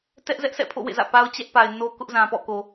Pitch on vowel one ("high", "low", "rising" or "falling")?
high